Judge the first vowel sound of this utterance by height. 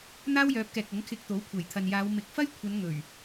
low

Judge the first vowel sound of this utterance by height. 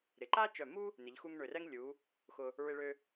high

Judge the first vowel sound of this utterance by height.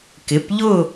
high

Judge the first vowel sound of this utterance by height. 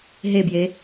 mid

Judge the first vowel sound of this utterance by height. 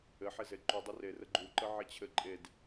mid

